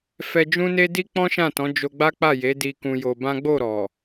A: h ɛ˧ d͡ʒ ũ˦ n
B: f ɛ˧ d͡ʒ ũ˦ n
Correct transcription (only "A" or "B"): B